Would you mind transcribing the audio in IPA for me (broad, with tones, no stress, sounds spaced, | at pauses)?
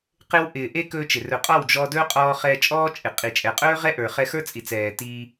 q ɪ˧ w ʔ ɪː˨ ʔ e˧ k ɵː˧ t͡ʃ ɪ˨ r ɵ˨ qʼ ɔ˦˨ w d͡ʒ ɔ˧ d ɵː˦ qʼ ɔː˧ χ ɛː˧ t͡ʃʼ ɔː˦ t͡ʃʼ ɪ˨ qʼ i˨ t͡ʃʼ ɛ˨ qʼ ɵː˦ ʁ ɛ˦ ʔ ə˞˨ χ ɛ˧ x ə˞˦ t͡sʼ i˨ t͡s ɛː˨ t iː˧